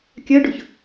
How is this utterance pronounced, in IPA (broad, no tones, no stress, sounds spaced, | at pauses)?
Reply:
kʲ ɜ ɖ ʊ ç